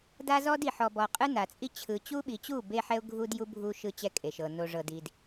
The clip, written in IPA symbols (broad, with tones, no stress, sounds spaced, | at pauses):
d a˦ z ɔ˦ d i˨ ħ ɔ˨ b ɔ˨ qʼ ɯ˦ n a˨ t͡sʼ i˦ t͡ɕʰ ɯ˨ t͡ɕ u˦ ɓ i˨ t͡ɕ u˦˨ b e˦ ħ ɛ˦ ʊ̯ ɡʱ u˦ d j u˦ bʱ u˦ ʃ ɯ˦ t͡ɕ ɛ˦ kʼ e˨ ʃ ɤ˨ n o˨ ʐ ɤ˨ d i˨ d